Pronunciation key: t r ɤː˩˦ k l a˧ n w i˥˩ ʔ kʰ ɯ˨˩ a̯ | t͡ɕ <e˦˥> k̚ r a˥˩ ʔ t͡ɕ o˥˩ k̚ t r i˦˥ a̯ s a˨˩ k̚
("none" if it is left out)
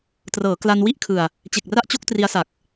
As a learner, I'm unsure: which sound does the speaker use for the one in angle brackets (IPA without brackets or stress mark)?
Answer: e˨˩